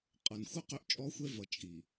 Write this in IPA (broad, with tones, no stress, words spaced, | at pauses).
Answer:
qʼʌ˨nxʷə˦ qø˦ʔt͡ʃʼɔ˦xʷɛ˦vʌ˨ t͡ʃʼi˨